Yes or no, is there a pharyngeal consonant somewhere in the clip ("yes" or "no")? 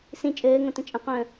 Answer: no